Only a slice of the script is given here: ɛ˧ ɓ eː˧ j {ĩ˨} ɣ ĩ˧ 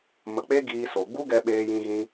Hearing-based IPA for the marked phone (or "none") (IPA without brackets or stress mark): ĩ˧